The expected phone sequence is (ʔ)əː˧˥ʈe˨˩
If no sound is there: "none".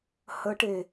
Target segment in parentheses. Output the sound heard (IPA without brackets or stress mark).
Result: h